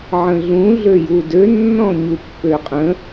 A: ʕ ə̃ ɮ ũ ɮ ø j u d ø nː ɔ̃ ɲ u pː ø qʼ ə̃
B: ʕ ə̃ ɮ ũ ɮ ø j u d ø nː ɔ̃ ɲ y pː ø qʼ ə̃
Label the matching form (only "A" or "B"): A